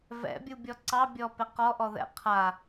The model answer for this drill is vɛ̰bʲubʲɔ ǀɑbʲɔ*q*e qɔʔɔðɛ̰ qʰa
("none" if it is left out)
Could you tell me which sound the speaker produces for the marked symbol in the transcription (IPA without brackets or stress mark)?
p